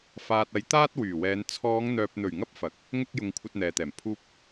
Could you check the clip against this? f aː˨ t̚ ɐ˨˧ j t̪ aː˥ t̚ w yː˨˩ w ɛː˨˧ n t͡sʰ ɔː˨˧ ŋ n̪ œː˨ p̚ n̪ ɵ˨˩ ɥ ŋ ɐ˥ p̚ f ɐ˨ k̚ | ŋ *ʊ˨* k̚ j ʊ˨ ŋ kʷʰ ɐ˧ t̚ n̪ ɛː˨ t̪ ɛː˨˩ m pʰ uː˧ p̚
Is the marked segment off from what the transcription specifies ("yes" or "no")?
yes